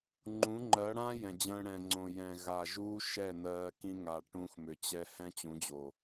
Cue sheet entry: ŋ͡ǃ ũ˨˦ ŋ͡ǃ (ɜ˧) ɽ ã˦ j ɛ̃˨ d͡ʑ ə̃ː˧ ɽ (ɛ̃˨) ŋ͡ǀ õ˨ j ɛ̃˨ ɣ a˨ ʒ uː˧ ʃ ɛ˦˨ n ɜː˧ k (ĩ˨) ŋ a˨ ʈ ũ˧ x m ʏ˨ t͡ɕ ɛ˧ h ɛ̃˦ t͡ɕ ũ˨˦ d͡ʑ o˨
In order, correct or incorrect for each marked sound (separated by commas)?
incorrect, correct, incorrect